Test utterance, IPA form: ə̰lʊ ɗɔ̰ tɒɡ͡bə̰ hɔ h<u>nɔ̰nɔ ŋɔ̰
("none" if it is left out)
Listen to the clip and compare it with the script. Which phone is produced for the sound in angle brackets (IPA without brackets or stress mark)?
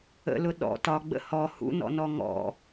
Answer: ṵ